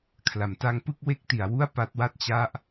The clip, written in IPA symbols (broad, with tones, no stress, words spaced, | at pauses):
kʰla˩˦mta˦˥ŋ pɯ˥˩k̚we˦˥k̚ti˩˦a̯ wu˥˩a̯pa˦˥t̚wa˥˩t̚ t͡ɕa˦˥ʔ